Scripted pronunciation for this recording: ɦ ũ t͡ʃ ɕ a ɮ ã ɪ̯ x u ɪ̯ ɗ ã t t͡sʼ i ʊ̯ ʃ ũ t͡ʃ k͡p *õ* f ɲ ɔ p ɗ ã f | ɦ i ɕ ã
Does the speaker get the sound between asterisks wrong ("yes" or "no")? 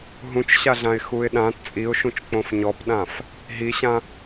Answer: no